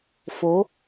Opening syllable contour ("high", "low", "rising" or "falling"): rising